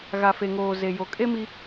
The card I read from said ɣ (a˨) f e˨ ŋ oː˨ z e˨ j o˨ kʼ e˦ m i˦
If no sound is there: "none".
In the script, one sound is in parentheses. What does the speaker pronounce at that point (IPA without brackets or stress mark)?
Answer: a˨